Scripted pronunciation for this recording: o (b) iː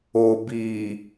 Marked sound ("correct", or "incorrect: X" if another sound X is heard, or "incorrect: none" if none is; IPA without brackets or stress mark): correct